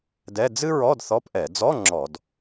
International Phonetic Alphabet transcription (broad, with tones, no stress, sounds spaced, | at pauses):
d ɛ˧˥˧ d͡z ɨ˥ ɹ ɔ˧˥˧ d θ ɔ˧˥˧ p ʔ ɛ˧˩˧ d͡z ɔ˧˥˧ ŋ͡ǁ ɔ˧˩˧ d